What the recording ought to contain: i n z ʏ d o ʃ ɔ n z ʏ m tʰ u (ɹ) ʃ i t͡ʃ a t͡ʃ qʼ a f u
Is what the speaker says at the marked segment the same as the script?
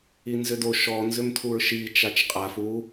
yes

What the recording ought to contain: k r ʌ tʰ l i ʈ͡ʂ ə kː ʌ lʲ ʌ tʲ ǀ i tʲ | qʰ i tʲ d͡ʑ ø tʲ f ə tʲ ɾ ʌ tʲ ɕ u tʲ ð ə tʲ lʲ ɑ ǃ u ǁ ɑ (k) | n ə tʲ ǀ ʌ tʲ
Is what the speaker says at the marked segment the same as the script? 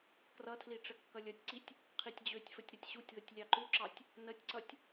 no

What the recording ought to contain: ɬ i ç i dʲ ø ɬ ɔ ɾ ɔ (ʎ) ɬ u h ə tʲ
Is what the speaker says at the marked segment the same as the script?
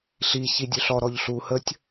yes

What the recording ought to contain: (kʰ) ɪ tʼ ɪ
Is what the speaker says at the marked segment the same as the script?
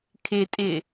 yes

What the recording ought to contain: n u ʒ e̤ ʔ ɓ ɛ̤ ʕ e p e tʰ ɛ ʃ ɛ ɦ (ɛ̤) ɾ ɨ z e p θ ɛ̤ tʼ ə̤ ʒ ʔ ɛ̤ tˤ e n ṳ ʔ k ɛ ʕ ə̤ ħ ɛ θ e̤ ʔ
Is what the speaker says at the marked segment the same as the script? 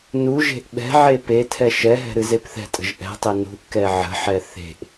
yes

